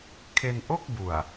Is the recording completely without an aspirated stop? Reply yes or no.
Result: no